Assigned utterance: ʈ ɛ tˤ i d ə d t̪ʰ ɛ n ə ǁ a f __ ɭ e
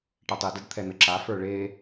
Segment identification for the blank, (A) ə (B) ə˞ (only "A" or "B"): B